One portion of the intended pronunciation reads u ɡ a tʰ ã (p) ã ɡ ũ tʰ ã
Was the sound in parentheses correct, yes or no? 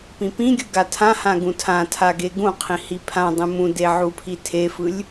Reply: no